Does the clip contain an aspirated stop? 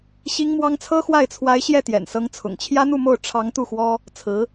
yes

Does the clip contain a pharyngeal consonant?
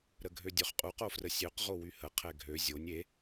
no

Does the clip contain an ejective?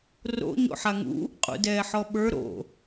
yes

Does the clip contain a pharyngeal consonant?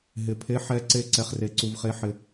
yes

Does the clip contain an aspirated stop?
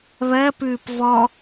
no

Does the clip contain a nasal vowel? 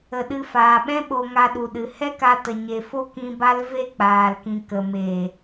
yes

